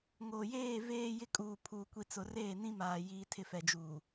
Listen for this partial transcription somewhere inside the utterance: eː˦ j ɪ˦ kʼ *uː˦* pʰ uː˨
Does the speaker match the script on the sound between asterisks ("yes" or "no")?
no